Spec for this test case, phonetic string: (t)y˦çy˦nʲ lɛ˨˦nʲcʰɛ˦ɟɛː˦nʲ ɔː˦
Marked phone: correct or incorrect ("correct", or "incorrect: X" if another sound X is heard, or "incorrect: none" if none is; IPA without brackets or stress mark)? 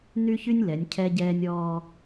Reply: incorrect: n